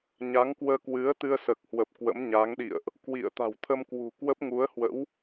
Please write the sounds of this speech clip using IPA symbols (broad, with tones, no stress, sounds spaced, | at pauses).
ɲ a˨˦ ŋ k w əː˧ k w ɨ˨˦ ə̯ t̪ ɨ˧ ə̯ s əː˨˩ k̚ h w ə˨˩ p̚ k w ə̰˧˥ m ɲ a˨˦ ŋ ɗ ḭ˧˨ ə̯ ʔ | k w ḭ˧˨ ə̯ t̪ a̤˨˩ w t̪ʰ ə˧ m k w ṳ˨˩ k w ə˦˥ p̚ ŋ u˨˦ ə̯ h w ə̰˧˥ w